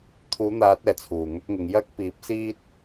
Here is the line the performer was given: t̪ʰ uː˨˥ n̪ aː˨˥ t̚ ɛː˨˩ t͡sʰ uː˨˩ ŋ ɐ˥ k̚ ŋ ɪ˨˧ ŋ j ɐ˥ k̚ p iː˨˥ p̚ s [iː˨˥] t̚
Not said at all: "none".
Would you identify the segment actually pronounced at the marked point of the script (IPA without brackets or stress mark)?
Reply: iː˥